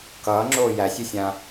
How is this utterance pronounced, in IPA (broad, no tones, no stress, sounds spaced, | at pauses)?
k ʌː ŋ͡ǁ oː j æ sʲ ʉ sʲ ã